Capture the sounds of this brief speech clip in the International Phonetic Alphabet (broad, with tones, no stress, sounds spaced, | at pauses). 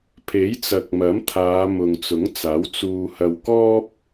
pʰ e˨˥ j t͡s ɐ˨ k̚ m ɐ˨˥ m t̪ʰ aː˨˧ m ʊ˨ ŋ t͡s ʊ˨˥ ŋ t͡s aː˨˥ w t͡s uː˧ h ɐ˧ w k ɔː˥ p̚